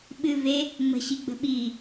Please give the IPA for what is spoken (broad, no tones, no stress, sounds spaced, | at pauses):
ɓ ɨ v e | ŋ͡m ə̤ ɕ i ɡ͡b ə̤ ɓ i